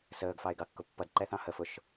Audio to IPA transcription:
səːɡfɑɪ̯ ɡɑkːʊpːʌd ǃɛθɑ̃hə fʊʃ

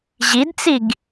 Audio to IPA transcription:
ʑidt͡siɡ

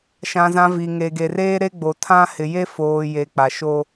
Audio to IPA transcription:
ʃã˨zã˨ vi˨ŋe˨ɡe˨reː˦ ɾe˦ɡ͡bo˨ tʰã˦ hɪ˨je˦foː˨ je˨k͡pa˨ʃo˦

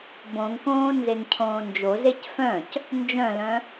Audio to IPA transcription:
bõŋkõː nzeŋcʰõːnd͡ʒozec fœ̃c | nd͡ʒœ̃lœ̃

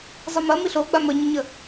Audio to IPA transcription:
zˤɪmɐ miɬoɡ͡ba məɲəɲə

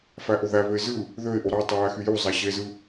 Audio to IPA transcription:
fæʔoðæβøɪ̯ zɯ | ðøɪ̯ʔo ɾɑ tˤojæxyju zˤæɕezɯ

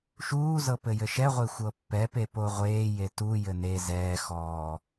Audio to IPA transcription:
ʃuːzɤ pɘjɘʃɛʁʷe xʷɤpːɛpe poʁʷeːje tujɘ ne zɛːxɔː

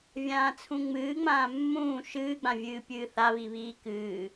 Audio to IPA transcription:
vʲãːt͡sʰũŋ͡mɨːŋ͡mãː mːũː ʃɨːɡ͡bãvʲɨː pʲɨːθaβiβiː kɨː

